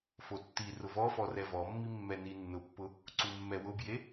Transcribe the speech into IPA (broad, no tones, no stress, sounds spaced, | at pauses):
f o tː i r ʊ v ɔ f ɔ r ɛ v ɔ mː i mː ɛ n i nː ʊ pː ʊ | ǀ u mː ɛ w ʊ b j e